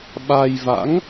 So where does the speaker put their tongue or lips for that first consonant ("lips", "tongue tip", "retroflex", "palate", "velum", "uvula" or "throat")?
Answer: lips